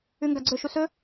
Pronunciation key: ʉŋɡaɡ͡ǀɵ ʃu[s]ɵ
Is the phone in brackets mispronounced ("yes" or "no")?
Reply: no